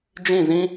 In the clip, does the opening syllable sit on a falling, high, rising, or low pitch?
falling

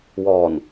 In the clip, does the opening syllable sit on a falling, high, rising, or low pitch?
low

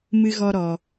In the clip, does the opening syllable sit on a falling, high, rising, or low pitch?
high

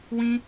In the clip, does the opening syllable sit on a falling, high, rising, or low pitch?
high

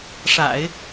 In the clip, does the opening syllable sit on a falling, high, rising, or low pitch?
low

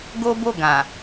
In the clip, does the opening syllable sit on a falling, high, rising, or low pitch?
high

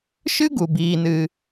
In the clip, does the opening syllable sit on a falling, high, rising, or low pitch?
high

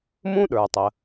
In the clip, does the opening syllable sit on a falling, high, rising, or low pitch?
high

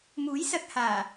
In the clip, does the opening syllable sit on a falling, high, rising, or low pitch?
rising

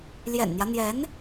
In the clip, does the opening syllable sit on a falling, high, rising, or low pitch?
low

